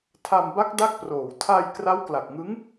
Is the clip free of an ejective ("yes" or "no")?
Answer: yes